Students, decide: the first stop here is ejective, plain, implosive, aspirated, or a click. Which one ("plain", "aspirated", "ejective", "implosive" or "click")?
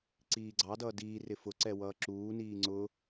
click